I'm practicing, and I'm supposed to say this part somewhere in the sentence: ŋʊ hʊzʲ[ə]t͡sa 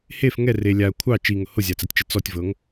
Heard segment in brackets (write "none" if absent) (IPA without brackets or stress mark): a